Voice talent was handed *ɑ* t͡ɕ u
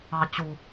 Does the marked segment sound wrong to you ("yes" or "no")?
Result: no